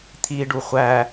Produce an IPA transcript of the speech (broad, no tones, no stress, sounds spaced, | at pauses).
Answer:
t̪ʰ i ɖ u χʷ æ